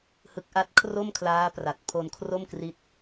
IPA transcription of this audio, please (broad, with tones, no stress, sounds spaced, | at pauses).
h ɯ˦˥ k̚ ʔ a˥˩ t̚ kʰ r o˥˩ m kʰ l aː˦˥ p r a˨˩ t̚ pʰ o˧ n kʰ r o˥˩ m k r i˦˥ t̚